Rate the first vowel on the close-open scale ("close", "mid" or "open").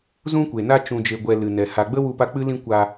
close